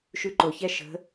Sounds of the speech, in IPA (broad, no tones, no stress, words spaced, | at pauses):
ʃʉǃoçɛ ʃə̤